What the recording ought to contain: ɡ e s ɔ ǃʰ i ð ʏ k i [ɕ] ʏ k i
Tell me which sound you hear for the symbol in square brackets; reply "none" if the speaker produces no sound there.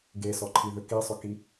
sˤ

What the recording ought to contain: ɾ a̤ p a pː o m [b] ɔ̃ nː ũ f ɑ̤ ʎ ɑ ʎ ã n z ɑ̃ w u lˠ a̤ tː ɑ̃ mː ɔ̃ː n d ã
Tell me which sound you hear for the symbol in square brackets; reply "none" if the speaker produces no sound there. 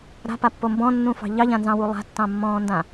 b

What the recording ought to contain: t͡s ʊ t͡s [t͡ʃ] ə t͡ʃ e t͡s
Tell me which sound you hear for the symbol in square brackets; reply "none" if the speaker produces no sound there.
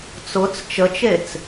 t͡ʃ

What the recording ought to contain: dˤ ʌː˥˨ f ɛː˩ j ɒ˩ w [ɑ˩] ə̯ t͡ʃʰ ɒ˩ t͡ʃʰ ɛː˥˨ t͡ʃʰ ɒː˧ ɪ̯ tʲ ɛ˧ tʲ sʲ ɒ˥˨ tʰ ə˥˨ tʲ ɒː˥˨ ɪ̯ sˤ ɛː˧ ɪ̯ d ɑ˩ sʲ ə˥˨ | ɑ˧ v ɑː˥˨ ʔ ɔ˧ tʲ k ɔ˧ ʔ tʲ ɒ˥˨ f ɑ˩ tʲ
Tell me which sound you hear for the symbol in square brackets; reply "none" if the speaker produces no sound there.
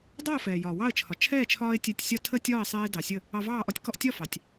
ɑ˥˨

